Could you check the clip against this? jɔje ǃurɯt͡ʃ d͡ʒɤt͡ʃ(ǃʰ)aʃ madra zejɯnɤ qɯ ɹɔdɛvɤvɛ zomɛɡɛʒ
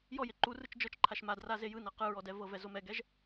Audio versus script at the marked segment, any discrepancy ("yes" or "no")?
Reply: no